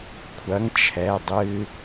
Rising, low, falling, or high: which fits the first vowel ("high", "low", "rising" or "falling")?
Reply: rising